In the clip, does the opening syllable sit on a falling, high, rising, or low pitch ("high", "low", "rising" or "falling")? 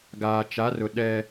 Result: low